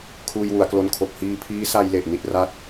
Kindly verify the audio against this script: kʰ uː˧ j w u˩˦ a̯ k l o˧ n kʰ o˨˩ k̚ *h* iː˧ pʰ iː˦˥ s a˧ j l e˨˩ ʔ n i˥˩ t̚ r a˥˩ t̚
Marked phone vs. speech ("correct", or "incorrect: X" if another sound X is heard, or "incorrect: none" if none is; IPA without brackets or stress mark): correct